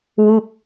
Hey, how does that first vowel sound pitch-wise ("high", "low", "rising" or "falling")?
falling